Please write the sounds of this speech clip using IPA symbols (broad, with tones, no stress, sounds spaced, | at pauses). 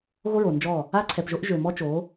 ɣ o˦ ɹ o˨ n d͡ʒ ɔ˦˨ | a˦ ǀʰ ɛ˨ p ʒ o˦ ʔ ʒ ø˨ m ɔ˦ t͡ʃ o˨˦